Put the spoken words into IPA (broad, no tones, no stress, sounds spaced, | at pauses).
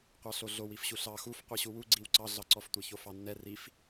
qʷ ɑ ɬ o ɮ o w i f ɕ u ɬ ɑ x u f qʷ i ɕ u w u ɡ͡ǀ i w ǀ ɑ ɮ ɑ ǀ ɔ f tʷ ɛ ç o f ɑ nː ɛ r i f